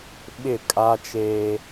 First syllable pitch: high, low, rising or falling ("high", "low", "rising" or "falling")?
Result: falling